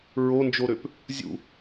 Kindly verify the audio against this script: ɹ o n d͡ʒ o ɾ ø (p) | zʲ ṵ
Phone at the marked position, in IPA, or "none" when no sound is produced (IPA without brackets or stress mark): p